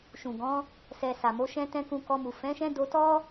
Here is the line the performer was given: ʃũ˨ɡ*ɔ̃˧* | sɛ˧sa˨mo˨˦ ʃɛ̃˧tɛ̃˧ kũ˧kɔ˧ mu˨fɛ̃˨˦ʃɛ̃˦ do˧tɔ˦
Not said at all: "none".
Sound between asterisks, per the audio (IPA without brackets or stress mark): ɔ̃˨˦